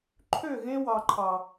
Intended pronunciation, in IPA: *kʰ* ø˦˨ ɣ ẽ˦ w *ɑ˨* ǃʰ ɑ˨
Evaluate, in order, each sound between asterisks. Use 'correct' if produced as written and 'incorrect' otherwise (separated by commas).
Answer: incorrect, correct